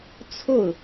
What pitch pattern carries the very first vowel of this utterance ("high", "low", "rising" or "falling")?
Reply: falling